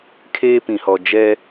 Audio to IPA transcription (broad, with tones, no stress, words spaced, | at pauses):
kʰeː˦pĩ˨hɔ˨ d͡ʒɛ˦